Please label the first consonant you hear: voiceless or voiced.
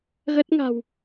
voiced